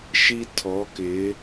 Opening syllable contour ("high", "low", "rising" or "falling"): high